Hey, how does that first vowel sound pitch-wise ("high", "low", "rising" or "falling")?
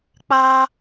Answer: high